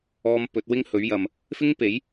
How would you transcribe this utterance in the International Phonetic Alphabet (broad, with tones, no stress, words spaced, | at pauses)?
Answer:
ɔː˧m pɵ˨˥t̚wɪ˥ŋ hɵ˨˥ɥjɐ˨m | fɪ˥ŋpe˨˥j